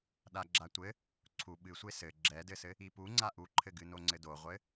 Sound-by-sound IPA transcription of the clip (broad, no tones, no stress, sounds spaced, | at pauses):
ɗ a ɡ͡ǁ a tʷ ɘ | ǀʰ u ɓ ɨ sʷ e s ɘ ɡ͡ǁ ɛ d ɘ s ɘ | i p u ŋ͡ǀ a ʔ u ǃʰ ɘ ɡ ɨ n o ŋ͡ǀ ɘ d o ʁʷ ɘ